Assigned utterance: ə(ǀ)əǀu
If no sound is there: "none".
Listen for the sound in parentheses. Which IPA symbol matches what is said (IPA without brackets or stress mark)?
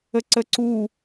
ǀ